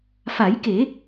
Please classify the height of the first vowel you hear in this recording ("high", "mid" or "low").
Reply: low